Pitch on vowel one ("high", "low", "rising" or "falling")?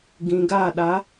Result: low